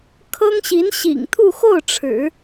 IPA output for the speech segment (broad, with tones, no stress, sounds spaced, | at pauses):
kʰ ɤ˥ ŋ ɕ i˧˥ n ɕ ḭ˨˩ ŋ t̪ʰ u˥˧ x o˥˩ ʊ̯ ʈ͡ʂʰ ɻ̩˨˩˦